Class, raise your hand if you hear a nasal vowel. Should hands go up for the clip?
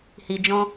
yes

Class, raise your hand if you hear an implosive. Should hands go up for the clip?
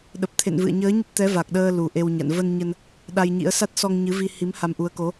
yes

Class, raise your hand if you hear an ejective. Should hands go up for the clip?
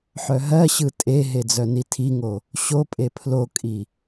yes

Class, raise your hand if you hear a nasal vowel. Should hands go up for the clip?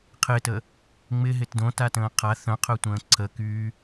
yes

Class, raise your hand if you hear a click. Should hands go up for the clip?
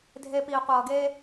no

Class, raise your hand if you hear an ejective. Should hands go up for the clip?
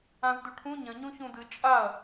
yes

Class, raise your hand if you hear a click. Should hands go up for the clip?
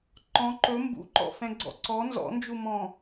yes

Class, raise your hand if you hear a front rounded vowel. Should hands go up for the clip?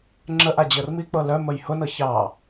yes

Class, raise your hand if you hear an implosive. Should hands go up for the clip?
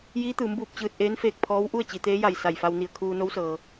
no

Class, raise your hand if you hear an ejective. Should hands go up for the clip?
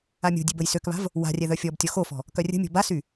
no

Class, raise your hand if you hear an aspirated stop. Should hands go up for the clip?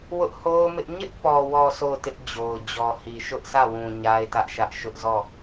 no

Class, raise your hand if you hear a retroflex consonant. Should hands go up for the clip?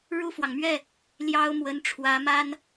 yes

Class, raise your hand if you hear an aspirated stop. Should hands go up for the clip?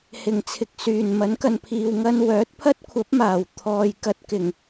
yes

